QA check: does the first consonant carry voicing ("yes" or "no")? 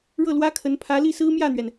yes